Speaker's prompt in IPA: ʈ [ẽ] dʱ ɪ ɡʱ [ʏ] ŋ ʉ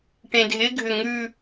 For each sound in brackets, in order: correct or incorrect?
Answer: correct, correct

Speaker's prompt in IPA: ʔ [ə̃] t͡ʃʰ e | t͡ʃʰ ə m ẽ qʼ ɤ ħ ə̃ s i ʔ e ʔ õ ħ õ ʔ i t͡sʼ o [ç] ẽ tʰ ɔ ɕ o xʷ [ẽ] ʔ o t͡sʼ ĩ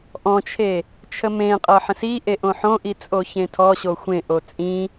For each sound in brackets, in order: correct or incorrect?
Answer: incorrect: ɔ̃, correct, correct

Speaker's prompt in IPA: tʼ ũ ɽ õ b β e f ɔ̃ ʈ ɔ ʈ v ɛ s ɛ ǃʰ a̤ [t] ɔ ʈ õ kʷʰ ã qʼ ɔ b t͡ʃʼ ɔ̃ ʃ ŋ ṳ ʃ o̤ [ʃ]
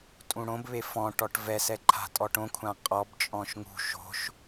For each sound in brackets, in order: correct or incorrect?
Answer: incorrect: tʼ, correct

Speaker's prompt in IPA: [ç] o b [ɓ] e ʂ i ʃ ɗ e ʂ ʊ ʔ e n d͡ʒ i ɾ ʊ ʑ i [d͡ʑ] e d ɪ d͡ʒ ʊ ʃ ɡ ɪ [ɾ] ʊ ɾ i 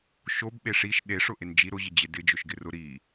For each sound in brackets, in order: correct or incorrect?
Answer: incorrect: ʃ, correct, correct, incorrect: r

